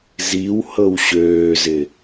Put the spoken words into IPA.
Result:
z i w h ɤ w ɕ øː z ɪ

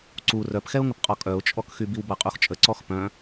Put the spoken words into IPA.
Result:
ǀ u r œ p x ɛ ʊ̯ ŋ ə p qʼ ɔ kʼ œ ʊ̯ t͡ʃʼ ɔ k x y b i w b a qʼ u x t͡ʃʼ ə ǀ ɔ x p œ̃

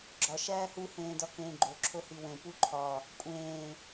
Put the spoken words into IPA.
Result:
ɡ͡ǁ ɒ ʃ æː h u h ẽː d ɒ k ẽː ɡ͡ǃ o ǁʰ o h i w ẽ p u ǃʰ ɒ | kʷʼ ẽː

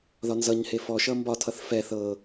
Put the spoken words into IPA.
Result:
ð ɒ n z ʌ ɲ h e f ɔ ʃ ʌ m b ɒ tʰ ʌ θ f ɛ θ ɤ

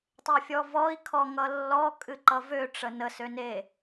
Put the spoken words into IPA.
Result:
tˤ ø fʲ ɔ v ɔ i̯ kʰ ɔ ŋ ʌ lː ɔ kʼ ɨ ǃ ʌ v ø ʈ͡ʂ ə n ə s ø n e

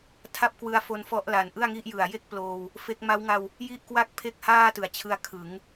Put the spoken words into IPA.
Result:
tʰ a˥˩ p̚ k w ɯ˧ a̯ f o˧ n f ɔ˦˥ ʔ l a˨˩ n ʔ ɯ˥˩ a̯ ŋ i˥˩ ʔ j ɯ˨˩ a̯ j e˥˩ k̚ p l oː˧ w | f e˦˥ k̚ m a˦˥ w ŋ a˧ w | j i˥˩ ʔ k w a˥˩ k̚ pʰ e˥˩ k̚ h aː˥˩ t ɯ˩˦ a̯ t͡ɕʰ ɯ˧ a̯ kʰ ɯ˩˦ ŋ

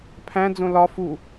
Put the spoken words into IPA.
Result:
pʰ æ̃ d͡z õ l ɒ f u

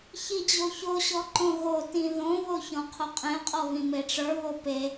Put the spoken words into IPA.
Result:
ç i d͡ʑ o ç o ɕ ɔ ǃ õ ɣ o t ĩ ð õ β o ç ɔ̃ qʰ o qʼ ẽ qʼ ɔ β ĩ m e ʈ͡ʂ ə˞ β o p e

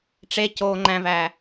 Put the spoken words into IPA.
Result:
ʈ͡ʂ e c oː ŋ͡ǃ æ̃ v æ

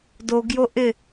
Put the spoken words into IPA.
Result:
d o ɡ j o ʔ ɪ

